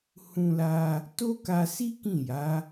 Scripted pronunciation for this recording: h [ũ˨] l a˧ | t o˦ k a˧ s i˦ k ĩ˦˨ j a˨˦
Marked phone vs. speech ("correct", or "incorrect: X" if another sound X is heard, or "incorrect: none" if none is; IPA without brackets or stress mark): incorrect: ũ˧